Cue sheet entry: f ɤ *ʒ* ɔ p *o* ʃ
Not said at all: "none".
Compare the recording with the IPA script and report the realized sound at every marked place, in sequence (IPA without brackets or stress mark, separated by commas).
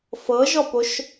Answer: ʒ, o